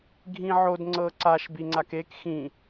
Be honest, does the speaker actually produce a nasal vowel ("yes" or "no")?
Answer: yes